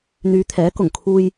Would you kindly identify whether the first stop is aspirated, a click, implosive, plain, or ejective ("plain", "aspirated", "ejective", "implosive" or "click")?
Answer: aspirated